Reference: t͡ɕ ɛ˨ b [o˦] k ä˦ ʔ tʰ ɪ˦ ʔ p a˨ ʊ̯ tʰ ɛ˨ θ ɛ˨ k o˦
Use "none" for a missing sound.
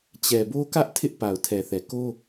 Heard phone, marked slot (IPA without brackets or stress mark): o˦